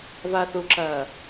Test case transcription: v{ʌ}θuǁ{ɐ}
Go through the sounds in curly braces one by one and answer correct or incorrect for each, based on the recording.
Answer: incorrect, incorrect

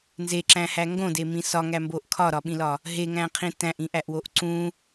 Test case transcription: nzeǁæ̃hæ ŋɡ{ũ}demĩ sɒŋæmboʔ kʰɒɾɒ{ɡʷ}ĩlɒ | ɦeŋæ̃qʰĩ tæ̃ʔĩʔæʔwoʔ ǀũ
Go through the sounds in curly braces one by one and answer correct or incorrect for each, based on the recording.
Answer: incorrect, incorrect

